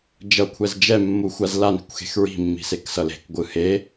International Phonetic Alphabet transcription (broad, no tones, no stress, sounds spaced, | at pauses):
d͡ʒ ʌ kʷʰ ɛ z d͡ʒ ɛ mː u xʷ a z l a n i̤ kʷ x e̤ x ɹ i̤ mː i̤ s e k s ʌ l e̤ k ɡʷ ɯ h e